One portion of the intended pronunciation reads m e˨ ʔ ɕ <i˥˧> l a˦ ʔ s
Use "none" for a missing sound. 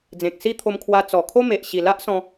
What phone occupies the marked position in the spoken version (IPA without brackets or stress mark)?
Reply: i˨˩